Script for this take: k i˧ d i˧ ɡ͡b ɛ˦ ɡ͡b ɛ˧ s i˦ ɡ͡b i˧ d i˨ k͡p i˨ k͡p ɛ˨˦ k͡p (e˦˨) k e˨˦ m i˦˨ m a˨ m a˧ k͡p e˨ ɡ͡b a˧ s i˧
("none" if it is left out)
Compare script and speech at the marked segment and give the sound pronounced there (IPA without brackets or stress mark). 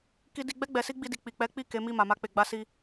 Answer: i˦˨